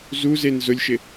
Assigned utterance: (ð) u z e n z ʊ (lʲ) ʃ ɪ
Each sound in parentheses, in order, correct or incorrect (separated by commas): incorrect, correct